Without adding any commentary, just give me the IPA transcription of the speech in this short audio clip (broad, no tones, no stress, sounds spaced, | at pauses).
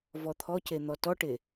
v ɔ t̪ʰ ɔ c e n̪ ɔ t ɔ ʈ e